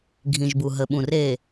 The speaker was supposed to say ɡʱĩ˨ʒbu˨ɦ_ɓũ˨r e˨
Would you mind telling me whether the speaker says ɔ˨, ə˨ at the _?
ə˨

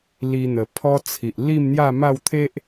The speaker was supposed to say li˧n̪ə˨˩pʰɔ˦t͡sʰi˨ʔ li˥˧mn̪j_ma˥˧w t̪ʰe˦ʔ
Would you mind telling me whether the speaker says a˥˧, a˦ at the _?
a˥˧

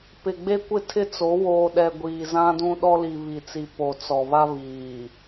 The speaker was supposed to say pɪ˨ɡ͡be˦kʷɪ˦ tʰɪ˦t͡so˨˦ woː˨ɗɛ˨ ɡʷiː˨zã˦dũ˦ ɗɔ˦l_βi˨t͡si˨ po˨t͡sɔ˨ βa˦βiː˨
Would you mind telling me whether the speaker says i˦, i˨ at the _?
i˨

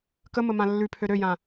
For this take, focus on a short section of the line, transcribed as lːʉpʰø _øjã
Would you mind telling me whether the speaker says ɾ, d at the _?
ɾ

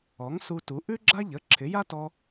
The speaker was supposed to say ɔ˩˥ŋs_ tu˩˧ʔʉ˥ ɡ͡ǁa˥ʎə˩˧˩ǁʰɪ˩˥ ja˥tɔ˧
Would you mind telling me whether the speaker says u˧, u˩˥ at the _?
u˧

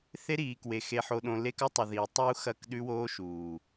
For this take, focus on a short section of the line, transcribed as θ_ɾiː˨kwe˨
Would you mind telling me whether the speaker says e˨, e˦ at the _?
e˦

